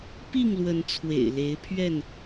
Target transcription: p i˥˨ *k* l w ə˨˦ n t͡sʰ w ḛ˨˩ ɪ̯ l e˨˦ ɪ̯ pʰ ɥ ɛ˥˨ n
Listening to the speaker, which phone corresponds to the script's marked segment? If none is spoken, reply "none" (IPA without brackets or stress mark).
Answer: ŋ